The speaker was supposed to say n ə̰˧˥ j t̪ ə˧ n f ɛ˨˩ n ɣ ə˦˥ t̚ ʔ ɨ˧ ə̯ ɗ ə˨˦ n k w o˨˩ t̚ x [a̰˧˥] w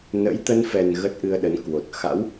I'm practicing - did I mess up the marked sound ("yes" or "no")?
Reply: no